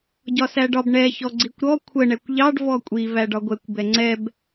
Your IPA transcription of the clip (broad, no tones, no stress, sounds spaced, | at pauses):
ɟ ɒ s æ ɖ ɒ b ɳ ɛ ç ɔ ɡ͡ǀ i kʷ ɾ ɔ kʷʰ ə ɳ ɛ kʷ ʎ ɑ ɖ v ɔ kʷʼ i v æ ɖ ɒ ɡʷ ɛ kʷ b ɛ ŋ͡ǀ ɛ b